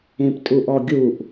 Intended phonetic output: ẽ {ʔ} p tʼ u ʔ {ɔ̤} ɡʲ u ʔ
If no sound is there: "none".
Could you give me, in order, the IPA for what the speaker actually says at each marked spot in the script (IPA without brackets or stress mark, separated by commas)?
none, ɔ